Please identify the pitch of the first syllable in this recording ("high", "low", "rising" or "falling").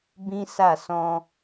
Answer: high